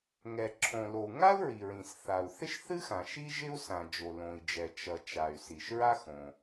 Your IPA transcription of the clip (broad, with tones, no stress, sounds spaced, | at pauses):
ŋ ɛ˩ ǁʰ õ˩ l o˩ u̯ ŋ a˥ u̯ ɹ i˩ ɹ ĩ˩ s θ a˩ u̯ θ ɪ˥ ʃ θ ɨ˥ x ã˩ ʃ i˥ ʒ ɪ˥ u̯ s ã˩ d͡ʒ o˩ l õ˩ i̯ d͡ʒ ɛ˩ t͡ʃ ʌ˩ t͡ʃ a˩ y̯ s i˩ ʃ ɹ a˥ x õ˩